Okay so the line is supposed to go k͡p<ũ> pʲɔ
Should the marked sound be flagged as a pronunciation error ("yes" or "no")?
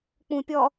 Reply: no